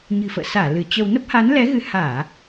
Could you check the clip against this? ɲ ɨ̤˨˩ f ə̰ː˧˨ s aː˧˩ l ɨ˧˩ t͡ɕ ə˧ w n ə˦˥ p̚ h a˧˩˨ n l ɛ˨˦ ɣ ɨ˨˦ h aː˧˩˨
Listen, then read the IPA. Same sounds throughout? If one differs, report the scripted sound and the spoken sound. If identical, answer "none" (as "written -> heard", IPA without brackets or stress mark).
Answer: a˧˩˨ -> a˨˦